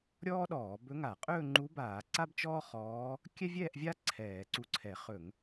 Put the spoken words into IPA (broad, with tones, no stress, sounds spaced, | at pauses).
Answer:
ɾʲ ɔː˥ ɗ ɔː˧˩˧ b ɵ˧˥ ŋ a˧˩˧ qʼ ɵː˥˧ ŋ͡ǃ u˧˥ b aː˧˩˧ ǀ a˥ b t͡ʃ ɔː˥ χ ɔː˧˥ | kʲ ɛ˥ vʲ ɛː˥˧ ʔ vʲ a˥ ǀʰ ɛː˧˩˧ ǀ u˧˥ ǀʰ ɛ˧˩˧ χ ɵ˧˩˧ ŋ